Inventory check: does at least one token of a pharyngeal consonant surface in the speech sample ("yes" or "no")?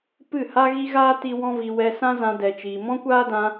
no